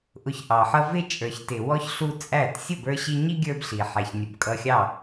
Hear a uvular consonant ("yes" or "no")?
no